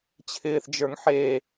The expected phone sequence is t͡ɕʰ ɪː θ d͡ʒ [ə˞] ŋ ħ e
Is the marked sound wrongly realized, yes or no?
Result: no